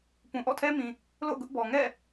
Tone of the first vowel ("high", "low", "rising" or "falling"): low